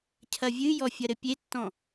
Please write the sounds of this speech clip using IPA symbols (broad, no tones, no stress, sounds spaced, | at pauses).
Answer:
cʰ ɐ vʲ ɨ j ɔ fʲ ɐ ɾ ɘ pʲ e tː ɔ̃